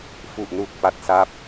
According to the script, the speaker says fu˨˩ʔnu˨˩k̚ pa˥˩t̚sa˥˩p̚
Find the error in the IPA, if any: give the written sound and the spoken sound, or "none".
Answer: none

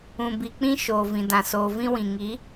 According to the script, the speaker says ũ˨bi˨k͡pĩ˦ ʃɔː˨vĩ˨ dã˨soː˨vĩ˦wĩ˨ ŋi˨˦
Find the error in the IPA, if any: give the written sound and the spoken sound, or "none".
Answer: ɔː˨ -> oː˨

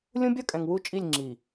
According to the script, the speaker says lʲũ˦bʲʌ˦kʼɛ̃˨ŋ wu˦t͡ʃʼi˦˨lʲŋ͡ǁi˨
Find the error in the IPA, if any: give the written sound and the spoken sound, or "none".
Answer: none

